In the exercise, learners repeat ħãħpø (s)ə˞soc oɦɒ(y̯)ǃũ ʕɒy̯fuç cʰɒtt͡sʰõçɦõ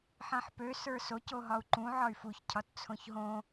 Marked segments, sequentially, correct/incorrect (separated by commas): correct, incorrect